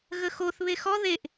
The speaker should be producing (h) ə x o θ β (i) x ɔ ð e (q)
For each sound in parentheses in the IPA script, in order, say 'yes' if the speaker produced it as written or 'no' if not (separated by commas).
no, no, no